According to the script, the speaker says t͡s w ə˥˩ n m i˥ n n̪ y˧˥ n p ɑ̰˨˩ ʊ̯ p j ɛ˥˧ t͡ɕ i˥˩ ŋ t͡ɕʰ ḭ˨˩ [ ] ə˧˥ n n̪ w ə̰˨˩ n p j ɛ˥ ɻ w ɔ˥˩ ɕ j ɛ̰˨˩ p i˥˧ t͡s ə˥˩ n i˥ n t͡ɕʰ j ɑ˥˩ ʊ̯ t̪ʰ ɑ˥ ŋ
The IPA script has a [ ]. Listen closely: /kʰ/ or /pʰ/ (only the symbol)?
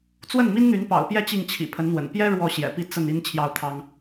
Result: pʰ